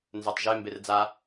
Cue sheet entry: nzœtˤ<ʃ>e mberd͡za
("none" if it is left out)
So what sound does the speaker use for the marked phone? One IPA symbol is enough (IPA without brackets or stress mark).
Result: ʒ